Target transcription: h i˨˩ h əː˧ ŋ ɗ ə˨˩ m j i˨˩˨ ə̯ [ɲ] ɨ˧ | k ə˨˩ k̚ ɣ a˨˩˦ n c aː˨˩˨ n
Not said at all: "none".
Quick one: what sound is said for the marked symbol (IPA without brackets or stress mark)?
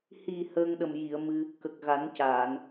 m